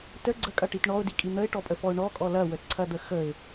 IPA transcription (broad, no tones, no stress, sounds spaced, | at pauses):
t ə ɡ͡ǀ ə kʼ ɐ ʈ i t ɳ ɔ ʊ̯ d i kʼ i n̪ ə ɪ̯ ʈ ɔ pʼ ə f ɔ ʊ̯ ɳ ɔ kʼ ɔ l ɐ w ə t ǀʰ ɐ d̪ ə x ə ɪ̯